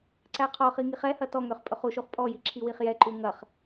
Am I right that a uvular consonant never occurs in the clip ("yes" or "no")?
no